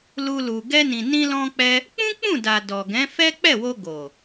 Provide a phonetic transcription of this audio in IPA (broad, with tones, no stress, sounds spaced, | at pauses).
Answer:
l u˧ l u˨ ɡ ɛ˧ n ĩ˨ n ĩ˧ l ɔ̃˧ k͡p ɛ˦ | k͡p ũ˦ k͡p ũ˦˨ d a˨ d ɔ˨ ɡ ɛ̃˨˦ f ɛ˦ k͡p ɛ˦˨ w o˧ ɡ o˨